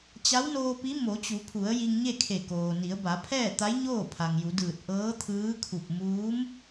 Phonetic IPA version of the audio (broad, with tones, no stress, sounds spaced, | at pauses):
t͡ɕ a˧˥ w n oː˧ p i˧˥ m o˩˧ t͡ɕ u˩˧ pʰ u˩˧ ə̯ j i˧ ŋ ɲ e˥˨ kʰ e˧˩ k oː˩ n i˩˧ ə̯ b a˩˧ pʰ ɛː˥˨ t̪ a˧˥ j ɲ oː˥˨ pʰ a˩ ŋ j u˩˧ d ɯː˧˩ t̚ ʔ ɤː˧˥ t̪ʰ ɯː˧˥ kʰ u˧˩ p̚ m uː˧˥ m